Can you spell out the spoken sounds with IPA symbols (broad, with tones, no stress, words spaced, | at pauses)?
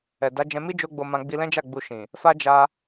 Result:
ɛ˨da˨˦ d͡ʒɛ̃˧mi˦ d͡ʒo˦ɡ͡bo˧mã˧ ɡ͡bi˧lɛ̃˦d͡ʒa˦˨ ɡ͡bu˧ʃĩ˨ | fa˦d͡ʒa˧